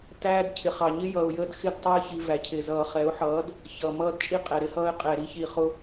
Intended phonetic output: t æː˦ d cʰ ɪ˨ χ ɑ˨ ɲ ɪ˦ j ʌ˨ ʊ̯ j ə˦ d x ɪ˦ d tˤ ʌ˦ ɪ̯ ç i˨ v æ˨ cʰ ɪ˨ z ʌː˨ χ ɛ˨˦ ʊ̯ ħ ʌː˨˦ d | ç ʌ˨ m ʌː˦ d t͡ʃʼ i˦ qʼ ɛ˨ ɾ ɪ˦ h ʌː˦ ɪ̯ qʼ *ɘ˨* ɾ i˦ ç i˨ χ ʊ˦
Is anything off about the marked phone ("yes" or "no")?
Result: yes